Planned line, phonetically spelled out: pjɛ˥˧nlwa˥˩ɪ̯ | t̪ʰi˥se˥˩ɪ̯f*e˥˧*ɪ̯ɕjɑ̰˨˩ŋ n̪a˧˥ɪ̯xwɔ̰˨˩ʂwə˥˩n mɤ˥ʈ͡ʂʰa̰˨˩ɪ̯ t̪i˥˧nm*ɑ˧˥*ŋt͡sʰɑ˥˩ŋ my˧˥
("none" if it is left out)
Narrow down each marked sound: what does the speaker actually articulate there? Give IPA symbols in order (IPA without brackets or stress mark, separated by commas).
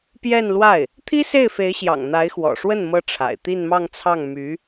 e˧˥, ɑ˥˧